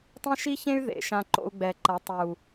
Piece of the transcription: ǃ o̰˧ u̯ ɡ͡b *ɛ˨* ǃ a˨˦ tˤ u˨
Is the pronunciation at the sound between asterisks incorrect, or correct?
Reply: correct